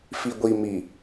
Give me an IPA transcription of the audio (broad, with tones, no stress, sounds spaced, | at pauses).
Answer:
f i˨ ɡʷ i˨ m i˨